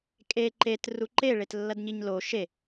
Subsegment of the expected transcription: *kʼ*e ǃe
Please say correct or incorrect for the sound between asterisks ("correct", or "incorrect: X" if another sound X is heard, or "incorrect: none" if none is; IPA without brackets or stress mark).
correct